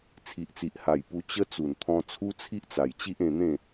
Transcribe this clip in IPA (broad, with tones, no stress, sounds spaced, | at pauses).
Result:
t͡sʰ i˨ ʔ t͡s i˨ ʔ h a˨˩ j p u˧ t͡ɕ ə˦ t͡s u˨˩ n t̪ʰ ɔ̃˧ t͡sʰ u˦ t͡sʰ i˦ ʔ t͡s a˨˩ j t͡ɕ i˦ ʔ ẽ˧ n̪ ẽ˥˧